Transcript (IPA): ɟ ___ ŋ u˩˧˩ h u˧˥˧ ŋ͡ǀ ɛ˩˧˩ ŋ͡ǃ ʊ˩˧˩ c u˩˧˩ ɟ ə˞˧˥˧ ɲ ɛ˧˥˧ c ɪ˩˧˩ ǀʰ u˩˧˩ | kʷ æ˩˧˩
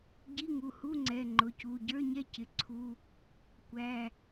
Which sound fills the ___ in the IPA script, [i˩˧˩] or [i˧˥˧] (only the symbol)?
i˧˥˧